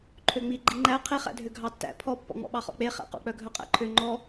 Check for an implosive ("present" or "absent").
present